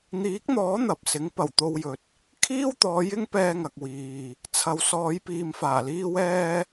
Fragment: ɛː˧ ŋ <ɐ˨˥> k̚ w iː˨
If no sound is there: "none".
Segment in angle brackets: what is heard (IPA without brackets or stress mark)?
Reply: ɐ˨